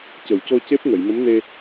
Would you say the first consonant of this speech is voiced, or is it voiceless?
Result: voiceless